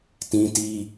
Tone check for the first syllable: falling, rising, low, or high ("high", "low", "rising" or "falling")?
high